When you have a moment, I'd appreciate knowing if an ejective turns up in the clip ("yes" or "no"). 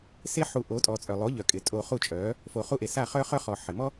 yes